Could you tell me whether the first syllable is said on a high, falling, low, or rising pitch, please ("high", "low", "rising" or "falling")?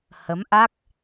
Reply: rising